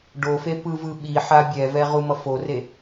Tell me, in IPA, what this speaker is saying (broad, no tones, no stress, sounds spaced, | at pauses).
ɖ o f e p ɯ v ɯ ɓ i ħ a bʲ ɛ v ɛ ʁ u m ʌ f o r e